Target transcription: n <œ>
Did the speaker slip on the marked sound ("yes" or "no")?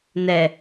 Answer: yes